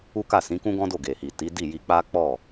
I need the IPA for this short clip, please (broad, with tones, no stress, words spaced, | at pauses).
u˦ka˦˨ sĩ˨˦kũ˦ɡɔ̃˦ do˦˨ɡe˨hi˨ ti˨˦di˦˨ji˧ k͡pa˦k͡pɔ˦˨